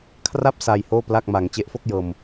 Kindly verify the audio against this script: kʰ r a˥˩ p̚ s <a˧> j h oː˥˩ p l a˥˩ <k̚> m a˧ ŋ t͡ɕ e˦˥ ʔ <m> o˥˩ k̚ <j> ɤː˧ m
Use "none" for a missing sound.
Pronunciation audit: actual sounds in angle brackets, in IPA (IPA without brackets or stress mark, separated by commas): a˧, k̚, f, j